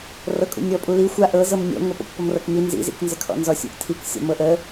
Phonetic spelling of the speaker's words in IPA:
r ɤ kʼ ṵ nʲ ɔ pʼ u l i xʷ a ʔ ɤ z ɤ m nʲ ɔ̰ ŋʷ e p ɔ̰ kʷ p ɔ m r ɤ k m i n z ḭ z ḭ k n z ə kʰ ɔ̰ n z ɔ sʲ ṵ ʔ tʰ i k sʲ ɔ̰ m ɤ ʔ ə

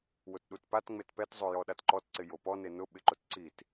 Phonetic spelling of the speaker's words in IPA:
w ʊ t ɗ u t p a t ŋ͡m e t p ɛ t zˤ o j ɔ ɗ a t ǃ ɔ t ǀ ɪ j o p ɔ n e n ʊ ɓ ɪ ǃ ʊ t ǀ i t

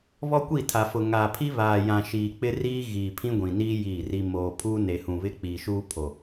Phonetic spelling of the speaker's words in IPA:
β ɔ˦ kʷ i˦˨ tʰ a˨ f ʊ˨ ŋ aː˨ pʰ i˦ β aː˨ j ã˨ ʃ iː˨ k͡p ɪ˦ r iː˦ ɣ iː˨ pʰ ĩ˦ ɡʷ ĩ˨ n iː˦ j iː˦˨ r i˦ m oː˨ pʰ uː˦ n e˨ h ũ˨ β ɪ˦ k͡p iː˨ ʃ uː˦ pʰ o˨

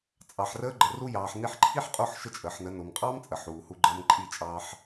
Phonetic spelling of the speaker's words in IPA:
t͡sʼ ɑ˨ ħ r əː˧ ɡ͡ǃ ə˨ r u˧ j ɑː˨ ħ n i˧ ħ ǃʰ i˦ ħ qʼ o˦˨ ħ ʃ ə˦ t͡ʃʼ əː˨ ħ n ə˨˦ n o˨ m qʼ ɑː˦ m t͡sʼ ə˨ ħ uː˨ h u˧ ɡ͡ǃ əː˧ m ǃʼ i˦˨ t͡ʃʼ ɑː˧ ħ

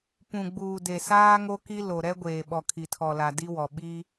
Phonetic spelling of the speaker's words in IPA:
p ũ˨ ɡ͡b uː˨ d e˨ s aː˦ ŋ o˦ k i˦ l o˨ ɾ ɛ˦ ɡʷ eː˨ ɓ ɔ˨ kʰ i˨ tʰ ɔ˨ l a˨ d i˦ w ɔ˨ ɓ i˦

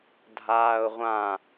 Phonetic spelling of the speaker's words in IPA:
dʱ aː ʊ̯ ʁʷ ã

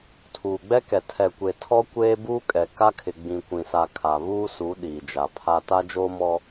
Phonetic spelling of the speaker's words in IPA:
tʰ uː˨ ɡ͡b ɛ˦ k ɛ˨ tʰ ɛ˨ kʷ e˨ tʰ ɔ˦ kʷ eː˦ b uː˦ kʼ ɛ˨ k a˦ kʰ ɪ˨ ɡ͡b ĩ˨ kʷ ĩ˨ s a˨ kʰ a˨ β uː˦ s u˨˦ ɗ iː˨ d͡ʒ a˨ pʰ a˦ t a˦ d͡ʒ oː˦ m ɔ˦

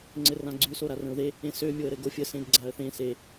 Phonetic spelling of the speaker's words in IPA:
ŋ͡ǀ ɘ r ã ɡ͡ǀ ʉ s o ɾ a r ə̃ ʊ̯ ð e | ẽ s ø mʲ o ə̯ ɾ ɘ ɡ o fʲ ə s ẽ d ɡ͡ǀ a ə̯ θ ẽ s e

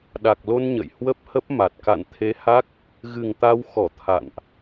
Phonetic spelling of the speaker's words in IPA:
ɗ a˨˩ k̚ l o˧ n ɲ ə̰˧˨ j h w ə˦˥ p̚ h ə˦˥ p̚ m a˨˩ t̚ k a̰˧˨ n t̪ʰ e˨˦ h a˦˥ k̚ | ɣ ɨ˨˩ ŋ t̪ a˧ w x ɔ˧˩ t̪ʰ a̰˧˨ n ʔ

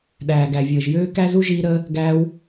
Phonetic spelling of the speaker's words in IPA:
ɗ æː˨ ɡ æ˨ vʲ əː˨ ʒ j øː˦ k æ˦ z u˦ ʒ iː˧ ɾ əː˧ | ɡ æː˧ w

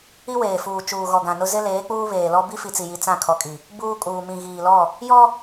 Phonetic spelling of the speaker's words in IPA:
i˦ w eː˨ f uː˨ t͡ʃ uː˨ ɣ ɔ˨ ɡ ã˨ n ʊ˦ z ɪ˦ l eː˨˦ k͡p uː˦ β eː˨ l ɔ˦ b i˦ f i˨ t͡s i˨ j i˨ t͡s ã˦˨ kʰ ɔ˨ kʼ i˨ | b uː˦ kʼ uː˨ m ĩ˨ ɣ iː˨ l ɔ˦˨ | j ɔ˦

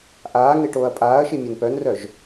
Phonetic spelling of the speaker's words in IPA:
ʔ aː ŋ e ʈ oː ɐ̯ pʼ aː ɐ̯ ʃ i mʲ œ n p œ n r œ ʒ

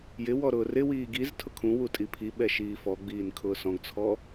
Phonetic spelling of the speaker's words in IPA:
j ɪ w ɔ ɾ ʊː r ɪ w iː ɡ i z tʰ ʊ kʰ ũ w u tʼ i pʰ i ɓ ɛ ʃ iː f ɔ ɡ͡b iː n kʰ ʊː s ɔ̃ ɡ t͡sʰ ɔ

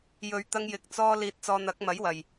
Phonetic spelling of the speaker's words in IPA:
j ɵ˨˧ ɥ t̪ ɐ˧ ŋ j ɪ˨ k̚ t͡s ɔː˧ l iː˨ t̚ t͡s ɔː˨ n̪ ɐ˨˥ k̚ m ɐ˨˥ j w ɐ˨˩ j

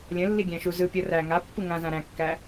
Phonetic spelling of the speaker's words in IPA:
lʲ ə̃ lː i ɡʲ æ̃ ʃ u z ɯ pʲ ɤ r æ ŋ a pː ɯ ŋ ã z ã ɾ æ̃ kː æ

